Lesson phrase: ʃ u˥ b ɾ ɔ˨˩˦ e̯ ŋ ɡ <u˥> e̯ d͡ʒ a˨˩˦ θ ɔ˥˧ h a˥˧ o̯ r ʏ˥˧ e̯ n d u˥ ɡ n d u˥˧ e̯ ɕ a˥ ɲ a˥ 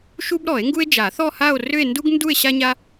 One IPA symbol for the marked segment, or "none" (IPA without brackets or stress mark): u˥